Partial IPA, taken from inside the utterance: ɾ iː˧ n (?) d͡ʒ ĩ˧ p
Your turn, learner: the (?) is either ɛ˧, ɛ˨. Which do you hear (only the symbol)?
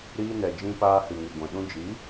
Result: ɛ˨